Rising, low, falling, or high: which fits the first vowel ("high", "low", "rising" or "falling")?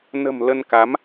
low